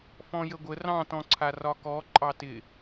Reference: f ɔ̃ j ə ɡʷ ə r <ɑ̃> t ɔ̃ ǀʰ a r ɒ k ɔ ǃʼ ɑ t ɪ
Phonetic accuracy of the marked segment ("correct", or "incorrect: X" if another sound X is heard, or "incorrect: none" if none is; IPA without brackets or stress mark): correct